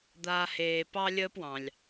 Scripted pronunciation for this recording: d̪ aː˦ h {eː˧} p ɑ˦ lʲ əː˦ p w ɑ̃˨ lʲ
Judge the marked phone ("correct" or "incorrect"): correct